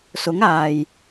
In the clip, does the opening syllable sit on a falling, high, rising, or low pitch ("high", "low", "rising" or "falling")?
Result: rising